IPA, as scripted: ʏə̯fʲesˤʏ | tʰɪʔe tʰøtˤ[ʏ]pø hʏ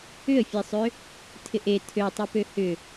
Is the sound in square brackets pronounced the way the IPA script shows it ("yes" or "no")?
yes